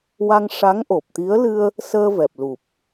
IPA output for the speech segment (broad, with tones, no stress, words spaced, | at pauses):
wa˧ŋʂa˧˥ŋʔo˨˩p̚t̪i˧˥ə̯ lɨ˧ə̯ | səː˧vɛ˨˩p̚ lu˨˩p̚